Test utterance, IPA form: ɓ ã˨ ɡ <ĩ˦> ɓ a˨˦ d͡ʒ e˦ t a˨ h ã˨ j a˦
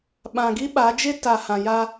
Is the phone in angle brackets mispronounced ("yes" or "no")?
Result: yes